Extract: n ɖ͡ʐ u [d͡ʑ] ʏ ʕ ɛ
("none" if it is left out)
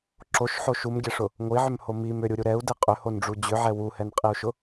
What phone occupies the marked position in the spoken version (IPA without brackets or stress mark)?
d͡ʑ